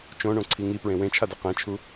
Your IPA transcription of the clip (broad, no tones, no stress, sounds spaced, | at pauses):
t͡ʃ õ ɳ õ ǀʰ i ŋ i p ɹ ẽ w ẽ t͡ʃʰ a d ɛ q ẽ t͡ʃʰ u